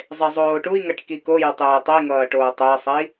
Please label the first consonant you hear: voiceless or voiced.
voiced